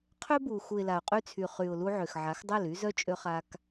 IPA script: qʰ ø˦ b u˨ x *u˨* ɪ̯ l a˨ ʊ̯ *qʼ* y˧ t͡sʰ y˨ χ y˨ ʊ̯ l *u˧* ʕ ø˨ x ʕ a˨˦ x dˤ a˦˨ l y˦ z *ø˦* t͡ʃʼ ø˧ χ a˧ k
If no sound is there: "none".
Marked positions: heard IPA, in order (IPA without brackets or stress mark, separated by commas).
u˨, qʼ, u˧, œ˦